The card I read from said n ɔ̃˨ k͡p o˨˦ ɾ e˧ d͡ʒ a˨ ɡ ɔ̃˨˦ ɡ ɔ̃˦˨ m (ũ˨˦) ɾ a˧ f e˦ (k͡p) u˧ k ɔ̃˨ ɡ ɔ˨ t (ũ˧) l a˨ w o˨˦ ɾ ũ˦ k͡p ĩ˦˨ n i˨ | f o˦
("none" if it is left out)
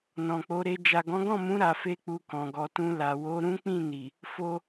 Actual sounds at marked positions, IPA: ũ˨˦, k͡p, ũ˧

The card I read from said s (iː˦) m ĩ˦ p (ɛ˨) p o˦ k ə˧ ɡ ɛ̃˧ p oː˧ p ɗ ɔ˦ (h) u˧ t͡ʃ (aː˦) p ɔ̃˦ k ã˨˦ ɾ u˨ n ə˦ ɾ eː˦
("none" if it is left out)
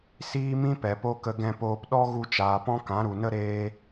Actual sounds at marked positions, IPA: iː˦, ɛ˨, ɣ, aː˨

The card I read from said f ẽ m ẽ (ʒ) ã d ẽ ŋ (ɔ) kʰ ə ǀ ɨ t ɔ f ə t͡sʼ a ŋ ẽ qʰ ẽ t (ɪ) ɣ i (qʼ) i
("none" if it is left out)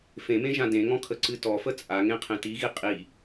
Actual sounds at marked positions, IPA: ʒ, ɔ̃, i, qʼ

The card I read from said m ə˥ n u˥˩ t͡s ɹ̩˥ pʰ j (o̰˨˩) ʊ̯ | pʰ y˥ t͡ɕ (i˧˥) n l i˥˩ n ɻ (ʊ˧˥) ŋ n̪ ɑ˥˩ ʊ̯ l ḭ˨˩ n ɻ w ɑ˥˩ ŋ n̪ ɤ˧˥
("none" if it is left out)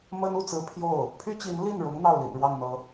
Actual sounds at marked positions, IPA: o˥˩, i˧˥, ʊ˧˥

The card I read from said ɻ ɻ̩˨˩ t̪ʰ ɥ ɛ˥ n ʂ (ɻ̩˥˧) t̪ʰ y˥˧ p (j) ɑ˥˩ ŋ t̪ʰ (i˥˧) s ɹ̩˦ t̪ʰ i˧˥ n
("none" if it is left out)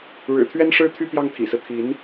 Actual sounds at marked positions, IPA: ɻ̩˥˧, j, ḭ˨˩

